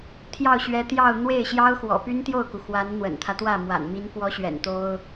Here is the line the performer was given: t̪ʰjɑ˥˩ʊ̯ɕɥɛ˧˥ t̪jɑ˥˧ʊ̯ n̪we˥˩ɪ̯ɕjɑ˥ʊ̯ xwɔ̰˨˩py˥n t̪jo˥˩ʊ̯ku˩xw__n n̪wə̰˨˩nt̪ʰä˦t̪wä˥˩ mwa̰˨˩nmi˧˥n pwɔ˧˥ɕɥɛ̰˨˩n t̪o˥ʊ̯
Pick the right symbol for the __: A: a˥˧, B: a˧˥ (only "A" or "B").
B